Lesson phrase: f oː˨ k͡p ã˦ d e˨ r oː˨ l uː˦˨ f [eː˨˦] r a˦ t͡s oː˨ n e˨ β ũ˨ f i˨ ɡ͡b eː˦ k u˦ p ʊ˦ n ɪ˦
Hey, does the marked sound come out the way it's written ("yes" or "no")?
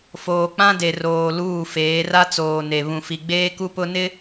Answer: yes